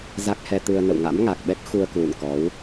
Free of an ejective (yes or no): yes